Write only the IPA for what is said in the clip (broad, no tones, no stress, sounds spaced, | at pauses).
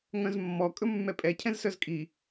ŋ œ̃ z mː ɔ kʼ ɵ mː ɛ pʼ ɛ cʰ ɛ̃ z s œ z kʼ i